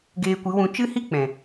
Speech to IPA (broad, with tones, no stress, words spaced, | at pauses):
ɡeː˧kʷɨ˨˦wũ˧ t͡ʃɨ˦hi˦ k͡pɛ̃˨